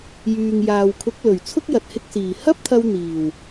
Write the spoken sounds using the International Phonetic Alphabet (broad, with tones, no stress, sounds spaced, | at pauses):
j yː˨ ŋ j aː˨ w kʰ ʊ˨˥ k̚ l ɵ˨˩ ɥ t͡sʰ ʊ˥ k̚ j ɐ˨ t̚ h ɪ˧ k̚ s iː˨˩ h ɐ˥ p̚ t̪ʰ ɐ˧ w n̪ iː˨˩ w